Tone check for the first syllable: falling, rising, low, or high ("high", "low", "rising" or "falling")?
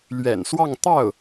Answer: low